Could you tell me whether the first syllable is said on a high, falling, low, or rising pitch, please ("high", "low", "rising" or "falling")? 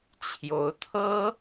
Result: rising